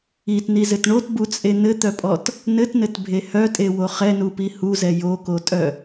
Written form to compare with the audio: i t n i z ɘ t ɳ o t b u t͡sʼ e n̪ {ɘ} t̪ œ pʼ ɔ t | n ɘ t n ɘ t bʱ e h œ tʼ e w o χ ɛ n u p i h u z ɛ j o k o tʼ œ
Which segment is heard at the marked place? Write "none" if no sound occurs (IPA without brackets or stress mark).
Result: ɘ